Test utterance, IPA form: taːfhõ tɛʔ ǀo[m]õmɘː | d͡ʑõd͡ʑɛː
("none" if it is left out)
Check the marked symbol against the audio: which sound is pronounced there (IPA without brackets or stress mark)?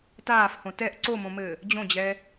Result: m